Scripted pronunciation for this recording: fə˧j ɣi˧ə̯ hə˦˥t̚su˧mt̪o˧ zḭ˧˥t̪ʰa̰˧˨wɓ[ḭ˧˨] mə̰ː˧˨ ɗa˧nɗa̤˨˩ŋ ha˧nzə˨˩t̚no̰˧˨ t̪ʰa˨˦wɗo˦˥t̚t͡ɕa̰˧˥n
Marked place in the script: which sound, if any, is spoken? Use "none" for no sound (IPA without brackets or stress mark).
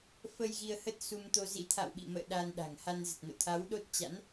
ḭ˧˨